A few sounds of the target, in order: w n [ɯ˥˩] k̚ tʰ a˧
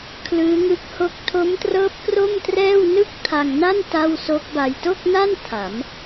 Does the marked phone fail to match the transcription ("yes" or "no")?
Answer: no